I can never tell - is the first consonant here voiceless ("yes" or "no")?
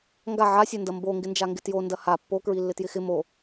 no